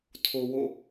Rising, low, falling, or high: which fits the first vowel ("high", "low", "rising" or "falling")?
low